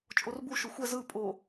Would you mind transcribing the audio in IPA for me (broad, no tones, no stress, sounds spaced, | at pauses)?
t͡ʃʼ o r b u ʃ o xʷ ɛ z ɯ pʼ o